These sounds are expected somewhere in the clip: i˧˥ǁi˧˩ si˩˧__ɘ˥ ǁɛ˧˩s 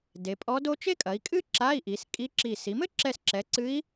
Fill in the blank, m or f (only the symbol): m